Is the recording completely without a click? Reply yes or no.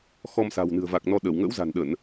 yes